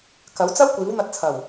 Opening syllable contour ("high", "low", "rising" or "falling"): rising